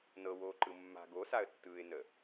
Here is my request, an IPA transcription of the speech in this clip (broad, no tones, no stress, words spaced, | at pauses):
nɤwoːǃɯ mːa̤ ɡosaə̯tːɯːɪ̯nə